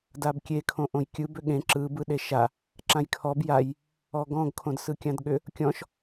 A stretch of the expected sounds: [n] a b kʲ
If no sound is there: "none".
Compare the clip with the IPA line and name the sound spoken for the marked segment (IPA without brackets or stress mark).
d